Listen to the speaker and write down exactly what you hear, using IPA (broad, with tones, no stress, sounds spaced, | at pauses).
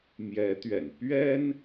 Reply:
m j ɛ˧˥ t̪ ɥ ɛ̰˨˩ n p ɥ ɛ˥ n